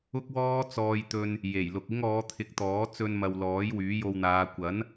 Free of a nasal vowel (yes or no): yes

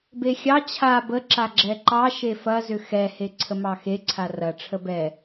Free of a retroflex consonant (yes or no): no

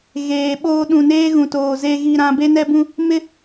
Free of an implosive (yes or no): no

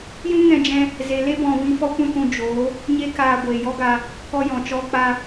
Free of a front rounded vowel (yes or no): yes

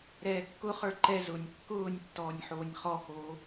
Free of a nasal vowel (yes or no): yes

